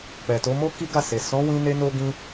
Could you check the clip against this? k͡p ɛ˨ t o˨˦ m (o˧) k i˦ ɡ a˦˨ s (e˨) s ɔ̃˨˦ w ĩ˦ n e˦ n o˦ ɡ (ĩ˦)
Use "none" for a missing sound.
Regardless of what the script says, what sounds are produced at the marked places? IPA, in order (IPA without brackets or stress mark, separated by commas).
o˦, e˨, ĩ˦